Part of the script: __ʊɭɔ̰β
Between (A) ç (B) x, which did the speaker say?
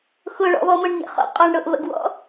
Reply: B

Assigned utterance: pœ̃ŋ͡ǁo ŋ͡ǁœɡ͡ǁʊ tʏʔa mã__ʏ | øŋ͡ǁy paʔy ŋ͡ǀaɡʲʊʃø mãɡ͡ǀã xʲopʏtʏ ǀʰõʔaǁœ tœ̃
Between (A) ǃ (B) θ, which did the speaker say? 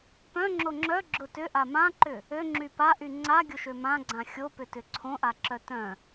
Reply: A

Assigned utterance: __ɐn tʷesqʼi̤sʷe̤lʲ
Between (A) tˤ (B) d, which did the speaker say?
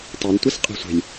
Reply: A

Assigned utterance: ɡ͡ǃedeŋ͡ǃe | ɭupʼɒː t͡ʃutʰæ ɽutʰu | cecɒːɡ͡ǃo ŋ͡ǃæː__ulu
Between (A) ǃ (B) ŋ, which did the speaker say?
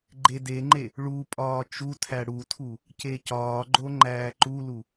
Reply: A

